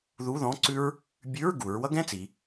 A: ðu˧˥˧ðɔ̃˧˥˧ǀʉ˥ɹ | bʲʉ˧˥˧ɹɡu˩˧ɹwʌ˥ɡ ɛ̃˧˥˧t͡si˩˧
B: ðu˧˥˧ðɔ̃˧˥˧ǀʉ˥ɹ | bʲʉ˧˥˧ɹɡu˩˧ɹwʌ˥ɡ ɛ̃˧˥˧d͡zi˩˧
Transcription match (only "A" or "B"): A